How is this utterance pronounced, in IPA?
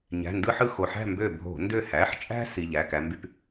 ɲæ̤˩˧˩ndɯ˦ħɯ˦˨ xo˩ħæ̤˦˨ mbø˦˨bʱo̤˧˩˧ ndø˦˨hæ˩˧˩ħ t͡ʃʼæ̤˦ si˩˧˩ʎæ˩˧˩kæ˨˦mby˦p

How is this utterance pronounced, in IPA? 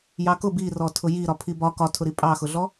jɑkʊ birɔtʰʊ ji ɾɒpʰibɒ kɒtʰʊɾi pʼɑxʊɮɔ

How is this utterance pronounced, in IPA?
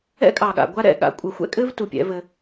ɛ̰˦kʼɑ˨ɠa̰˨ ɡʷa˧ɾɛ̰˦˨ ɠa̰˧ kʷʼɛ˨xʷɛ̰˦ kʼɘ˦v tu˧pʲɛ̰˨˦vɘ˧

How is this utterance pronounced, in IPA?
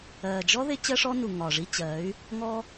ɜː˨ d͡ʒɔ˦ ðɪ˦t͡ɕɜ˦ʂɔ˦nu˨ ŋɒː˨ʐi˦t͡ɕɜː˨˦y̯ | ŋɔ˦

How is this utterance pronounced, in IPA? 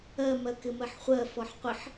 ɜmɜkɪ mɜħχʷɜ fɔħqʷɪħ

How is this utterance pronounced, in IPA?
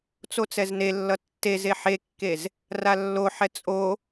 t͡sot͡sɛznelːʌ tːeze ħekːez | ralːoħɛ t͡sʼo

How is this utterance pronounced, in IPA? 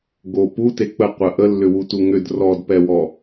ɡo pute k͡pə qʷə ʔə lːʏwutuŋʏd rɔdpɛwɔ

